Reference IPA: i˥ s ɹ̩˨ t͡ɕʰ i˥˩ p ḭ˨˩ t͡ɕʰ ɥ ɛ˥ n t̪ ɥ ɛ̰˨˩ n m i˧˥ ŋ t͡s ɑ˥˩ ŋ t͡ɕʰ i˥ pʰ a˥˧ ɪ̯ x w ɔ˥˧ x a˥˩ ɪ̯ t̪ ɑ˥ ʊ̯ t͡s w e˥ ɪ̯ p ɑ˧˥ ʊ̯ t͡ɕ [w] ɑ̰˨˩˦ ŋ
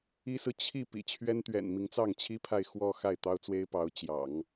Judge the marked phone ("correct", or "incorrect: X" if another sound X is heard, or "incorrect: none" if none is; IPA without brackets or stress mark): incorrect: j